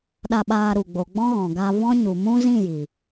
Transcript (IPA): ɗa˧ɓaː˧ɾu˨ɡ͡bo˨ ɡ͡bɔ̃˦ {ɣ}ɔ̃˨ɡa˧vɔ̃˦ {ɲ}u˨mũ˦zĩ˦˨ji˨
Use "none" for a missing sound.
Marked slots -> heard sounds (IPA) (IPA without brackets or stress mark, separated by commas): ɣ, ɲ